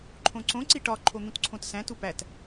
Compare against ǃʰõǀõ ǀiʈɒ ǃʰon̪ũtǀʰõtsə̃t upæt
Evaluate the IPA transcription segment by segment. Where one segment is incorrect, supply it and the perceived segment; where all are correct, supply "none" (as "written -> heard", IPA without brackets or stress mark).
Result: ə̃ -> æ̃